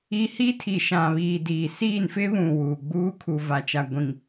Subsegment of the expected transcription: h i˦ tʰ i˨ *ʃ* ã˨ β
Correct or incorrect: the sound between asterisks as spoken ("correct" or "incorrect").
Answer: correct